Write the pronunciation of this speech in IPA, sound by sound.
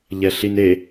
ʎɛɬine

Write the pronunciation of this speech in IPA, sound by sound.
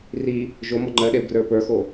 ri | ʒomɔ ŋ͡ǃɜɗeu̯ɡrə˞ pə˞xo

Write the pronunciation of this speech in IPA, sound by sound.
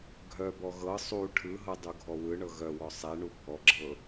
ɡʱœbɔ ɣɤ sˤu ʈʰɯɦɤ dˤuɡʱɔwɯɳɤ ɣœwɔ sˤɛɳu bʱɔɡ͡ǁɤ

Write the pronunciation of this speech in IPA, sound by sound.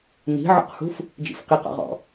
ni̤ʕɔ̰qhṳf | d͡ʒḭfqiqɔ̰ʁɔ̰

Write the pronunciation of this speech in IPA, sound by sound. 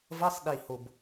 vʌ˧˥˧sˤɗi˨˩ho˨˩b

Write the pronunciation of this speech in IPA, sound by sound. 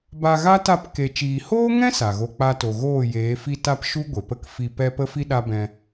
ba˧ɣa˦ ta˦˨p ke˨t͡ʃiː˨hoː˦ŋɛ̃˦ sa˨ɣo˧ k͡pa˧to˨ ɣoː˦˨jeː˨˦fi˦ta˦p ʃu˦ ɡʷe˨ pə˦kfi˧ pɛ˦pə˦fi˦ɗa˦ bɛ̃˧

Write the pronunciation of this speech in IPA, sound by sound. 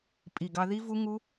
pʼi˨˩ɡɑ˧ ði˦˥vu˦˥ŋu˦˥

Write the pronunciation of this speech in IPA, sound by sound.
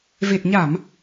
ve˨˩t̚ɲa˧˩˨m

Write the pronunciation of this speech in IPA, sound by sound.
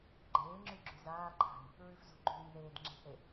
ɡ͡ǃeːŋ͡ǁʉ ɡ͡ǁʉzaːǃʰa̤j | ɹʉfzṳɡ͡ǃʉːj ðeːd ŋ͡ǁe̤θe

